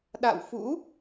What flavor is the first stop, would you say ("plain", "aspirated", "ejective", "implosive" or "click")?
implosive